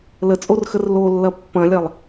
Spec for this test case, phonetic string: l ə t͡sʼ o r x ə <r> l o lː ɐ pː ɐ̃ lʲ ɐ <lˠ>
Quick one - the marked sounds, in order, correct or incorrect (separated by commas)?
correct, correct